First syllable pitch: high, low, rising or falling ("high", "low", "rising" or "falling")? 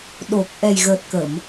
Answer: low